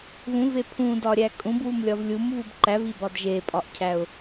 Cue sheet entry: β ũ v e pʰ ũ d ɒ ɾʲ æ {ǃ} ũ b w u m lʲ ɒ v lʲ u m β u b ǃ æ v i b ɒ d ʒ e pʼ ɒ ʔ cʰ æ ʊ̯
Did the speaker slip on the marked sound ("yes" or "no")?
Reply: yes